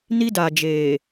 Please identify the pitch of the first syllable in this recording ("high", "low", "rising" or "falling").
high